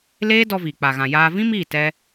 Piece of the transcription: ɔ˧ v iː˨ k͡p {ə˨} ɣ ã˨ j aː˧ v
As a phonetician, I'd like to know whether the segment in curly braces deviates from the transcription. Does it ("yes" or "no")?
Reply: yes